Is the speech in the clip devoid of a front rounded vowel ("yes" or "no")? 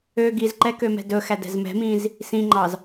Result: no